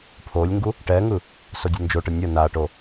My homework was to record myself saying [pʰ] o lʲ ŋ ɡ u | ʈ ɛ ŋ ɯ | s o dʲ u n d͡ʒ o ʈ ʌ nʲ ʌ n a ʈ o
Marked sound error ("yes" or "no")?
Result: no